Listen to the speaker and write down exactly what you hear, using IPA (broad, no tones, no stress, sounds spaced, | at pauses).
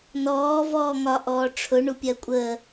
n ɔː v ɔː ŋ ɒ ʔ ɔː ʈ͡ʂʰ ʊ ɳ u pʲ ɜ kʷʼ ə